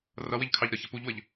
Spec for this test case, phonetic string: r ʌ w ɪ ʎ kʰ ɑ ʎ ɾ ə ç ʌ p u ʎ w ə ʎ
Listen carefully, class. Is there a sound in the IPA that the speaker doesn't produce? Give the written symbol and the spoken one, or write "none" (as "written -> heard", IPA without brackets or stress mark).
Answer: none